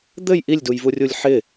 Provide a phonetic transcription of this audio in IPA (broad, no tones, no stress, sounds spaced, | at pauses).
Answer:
d̪ ɘ j ʔ i lʲ d u j v u rʲ u lʲ ħ ɪ